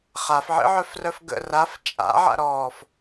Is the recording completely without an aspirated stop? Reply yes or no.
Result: yes